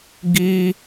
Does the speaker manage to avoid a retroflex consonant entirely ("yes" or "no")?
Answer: yes